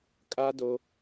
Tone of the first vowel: high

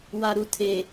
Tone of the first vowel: low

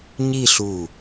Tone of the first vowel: falling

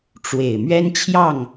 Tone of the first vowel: low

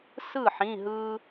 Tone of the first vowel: falling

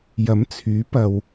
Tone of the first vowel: rising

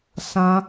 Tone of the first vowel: high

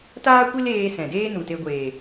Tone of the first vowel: high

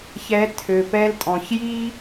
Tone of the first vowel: rising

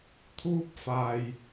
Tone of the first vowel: high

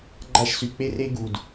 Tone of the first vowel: falling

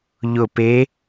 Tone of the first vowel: low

